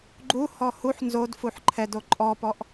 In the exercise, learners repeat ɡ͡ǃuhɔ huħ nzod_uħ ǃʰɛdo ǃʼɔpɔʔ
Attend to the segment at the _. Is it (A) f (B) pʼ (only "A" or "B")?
A